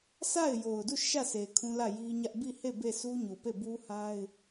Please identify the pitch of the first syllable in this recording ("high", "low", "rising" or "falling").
falling